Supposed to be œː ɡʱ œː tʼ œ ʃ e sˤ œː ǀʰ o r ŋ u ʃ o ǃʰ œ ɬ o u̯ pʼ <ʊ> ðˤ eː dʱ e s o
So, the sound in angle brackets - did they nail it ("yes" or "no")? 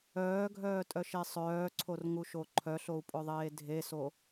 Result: yes